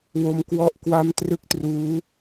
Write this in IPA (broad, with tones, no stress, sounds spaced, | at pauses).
w o˧ m k w ɔ˥˩ ʔ k w a˦˥ m t r ɯ˦˥ k̚ t r uː˦˥